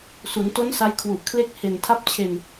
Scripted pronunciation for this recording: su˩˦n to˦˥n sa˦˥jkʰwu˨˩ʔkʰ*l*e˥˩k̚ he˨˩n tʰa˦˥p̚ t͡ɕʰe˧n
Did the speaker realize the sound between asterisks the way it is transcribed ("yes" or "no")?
yes